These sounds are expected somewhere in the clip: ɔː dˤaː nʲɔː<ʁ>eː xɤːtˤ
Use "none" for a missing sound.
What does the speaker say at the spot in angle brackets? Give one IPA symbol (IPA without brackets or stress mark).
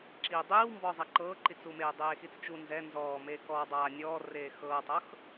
r